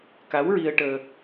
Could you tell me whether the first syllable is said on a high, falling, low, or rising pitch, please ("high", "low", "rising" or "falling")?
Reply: rising